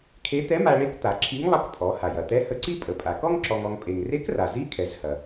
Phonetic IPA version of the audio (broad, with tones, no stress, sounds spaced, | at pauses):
kʰ e˧˥ t̪ ɛ˧˥ m a˧ ɭ e˧˥ k t̪ a˩˧ ǁʰ i˧˥ ŋ lˠ ɐ˧˥ k pʼ ɔ˩˧ h a˩ j ɐ˩ t̪ ɛ˧˥ h ə˧ ǀ i˥ pʼ ə˩˧ pʼ a˩ k ɔ˥ ŋ ǁ ɔ˧ ŋ ɔ˧ ŋ pʼ e˩ ŋ r e˧˥ k r a˩ z i˧˥ kʰ ɛ˩˧ z h ɐ˩